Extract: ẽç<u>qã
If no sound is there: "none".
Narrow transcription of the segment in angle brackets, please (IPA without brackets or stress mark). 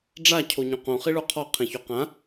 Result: o